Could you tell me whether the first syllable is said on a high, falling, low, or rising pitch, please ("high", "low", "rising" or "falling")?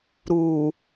low